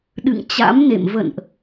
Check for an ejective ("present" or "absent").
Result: absent